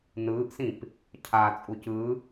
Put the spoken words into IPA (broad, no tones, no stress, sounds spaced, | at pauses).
n ɯː ʔ s ĩ p | cʰ a t͡sʼ u c ɯ